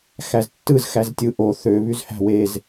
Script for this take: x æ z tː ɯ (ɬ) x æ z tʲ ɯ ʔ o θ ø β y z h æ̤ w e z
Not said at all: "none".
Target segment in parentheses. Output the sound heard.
z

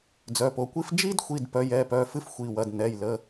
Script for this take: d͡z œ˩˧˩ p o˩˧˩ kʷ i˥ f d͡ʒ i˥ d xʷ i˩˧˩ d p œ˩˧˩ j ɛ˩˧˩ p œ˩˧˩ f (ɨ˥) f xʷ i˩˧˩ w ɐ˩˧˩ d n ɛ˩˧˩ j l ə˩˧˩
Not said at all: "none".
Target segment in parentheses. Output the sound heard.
ɨ˥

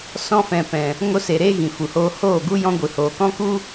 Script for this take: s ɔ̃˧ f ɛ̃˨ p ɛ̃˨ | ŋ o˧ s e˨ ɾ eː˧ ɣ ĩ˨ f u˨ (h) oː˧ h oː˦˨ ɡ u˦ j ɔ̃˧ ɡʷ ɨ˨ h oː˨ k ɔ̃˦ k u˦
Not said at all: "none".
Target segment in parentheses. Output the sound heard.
h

